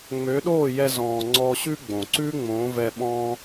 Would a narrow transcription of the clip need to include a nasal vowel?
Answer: yes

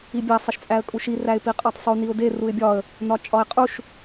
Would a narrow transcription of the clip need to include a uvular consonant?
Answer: yes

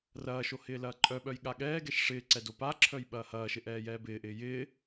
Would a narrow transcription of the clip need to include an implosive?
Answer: yes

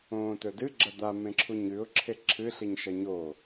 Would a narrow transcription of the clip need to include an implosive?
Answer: no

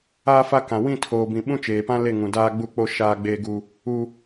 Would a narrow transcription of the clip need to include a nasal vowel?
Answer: yes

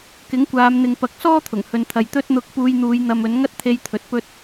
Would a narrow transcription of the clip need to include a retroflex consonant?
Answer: no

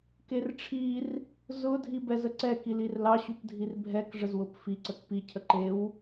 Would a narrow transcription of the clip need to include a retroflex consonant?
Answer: yes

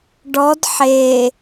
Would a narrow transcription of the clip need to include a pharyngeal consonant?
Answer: yes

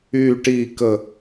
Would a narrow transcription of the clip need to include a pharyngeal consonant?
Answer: no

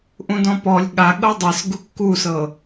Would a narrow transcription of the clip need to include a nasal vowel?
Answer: yes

